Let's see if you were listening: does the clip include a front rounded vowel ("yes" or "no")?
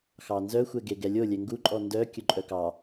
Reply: yes